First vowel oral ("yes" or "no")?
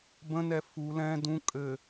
no